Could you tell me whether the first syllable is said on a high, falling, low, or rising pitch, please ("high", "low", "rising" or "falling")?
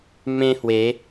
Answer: high